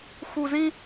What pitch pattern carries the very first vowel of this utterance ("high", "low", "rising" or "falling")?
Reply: low